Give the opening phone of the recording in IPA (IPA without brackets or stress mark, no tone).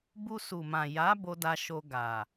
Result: b